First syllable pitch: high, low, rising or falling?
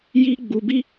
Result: high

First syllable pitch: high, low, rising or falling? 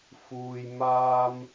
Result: low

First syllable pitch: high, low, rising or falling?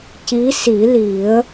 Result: rising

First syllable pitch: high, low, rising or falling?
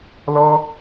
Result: high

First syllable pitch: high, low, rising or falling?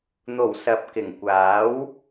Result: low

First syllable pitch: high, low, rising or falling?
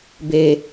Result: low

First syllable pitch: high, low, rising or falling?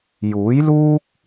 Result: rising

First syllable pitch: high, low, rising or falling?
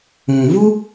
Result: low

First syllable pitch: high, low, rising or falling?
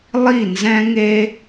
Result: falling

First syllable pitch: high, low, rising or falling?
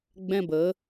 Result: high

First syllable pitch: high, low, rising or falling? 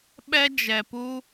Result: high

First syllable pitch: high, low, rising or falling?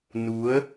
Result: rising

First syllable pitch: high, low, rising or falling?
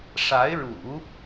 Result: rising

